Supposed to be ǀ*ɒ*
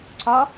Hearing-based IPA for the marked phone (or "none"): ɒ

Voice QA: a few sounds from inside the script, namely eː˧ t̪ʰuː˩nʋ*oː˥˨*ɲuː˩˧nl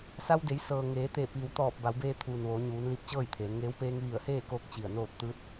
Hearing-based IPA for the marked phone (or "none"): oː˩˧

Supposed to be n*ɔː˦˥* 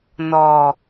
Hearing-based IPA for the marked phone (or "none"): ɔː˧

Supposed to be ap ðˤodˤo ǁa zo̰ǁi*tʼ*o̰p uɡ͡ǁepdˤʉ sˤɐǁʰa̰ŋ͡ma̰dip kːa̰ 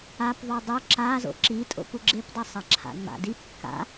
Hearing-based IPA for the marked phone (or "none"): tʼ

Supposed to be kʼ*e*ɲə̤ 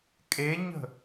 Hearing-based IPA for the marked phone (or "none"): e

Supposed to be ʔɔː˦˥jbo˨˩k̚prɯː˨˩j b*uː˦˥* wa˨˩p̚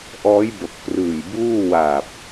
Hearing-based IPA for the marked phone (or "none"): uː˥˩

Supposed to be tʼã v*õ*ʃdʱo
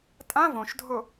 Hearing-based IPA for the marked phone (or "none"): õ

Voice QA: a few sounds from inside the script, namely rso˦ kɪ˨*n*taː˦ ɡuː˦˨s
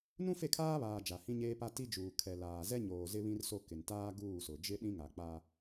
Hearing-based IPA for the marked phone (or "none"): n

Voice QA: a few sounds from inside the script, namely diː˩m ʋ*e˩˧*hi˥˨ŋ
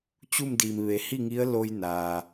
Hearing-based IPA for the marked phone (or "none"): e˩˧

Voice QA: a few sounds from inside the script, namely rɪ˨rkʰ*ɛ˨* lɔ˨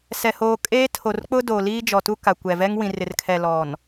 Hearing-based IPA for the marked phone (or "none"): ɛ˨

